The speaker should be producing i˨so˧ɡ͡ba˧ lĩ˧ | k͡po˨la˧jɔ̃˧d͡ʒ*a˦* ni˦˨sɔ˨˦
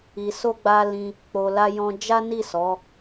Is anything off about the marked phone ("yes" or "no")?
no